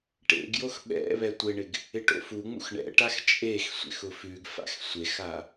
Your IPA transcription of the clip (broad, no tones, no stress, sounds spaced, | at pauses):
ʈ ḛ ɡ j o x ɓ ɛ̰ β ɛ tʷ ɪ ɳ ɪ ɡ | ɪ ʈ o̰ f u ŋ͡m ṵ x ɳ ɛ̰ ʈ a x t͡ʃʼ e x sʷ ḛ x ʊ f ʉ ɡ f a̰ x sʷ e x a